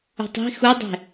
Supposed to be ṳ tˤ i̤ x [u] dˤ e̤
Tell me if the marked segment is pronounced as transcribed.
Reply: yes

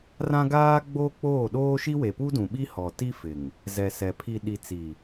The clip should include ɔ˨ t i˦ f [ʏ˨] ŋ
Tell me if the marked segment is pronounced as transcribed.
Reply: no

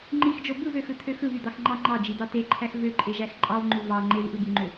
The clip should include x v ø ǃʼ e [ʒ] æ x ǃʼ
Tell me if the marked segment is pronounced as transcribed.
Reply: yes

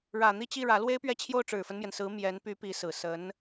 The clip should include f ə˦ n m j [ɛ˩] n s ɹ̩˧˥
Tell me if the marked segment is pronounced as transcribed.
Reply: yes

